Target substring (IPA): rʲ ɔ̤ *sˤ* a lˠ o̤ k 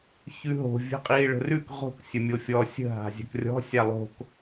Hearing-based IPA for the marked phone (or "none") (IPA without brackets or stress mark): sʲ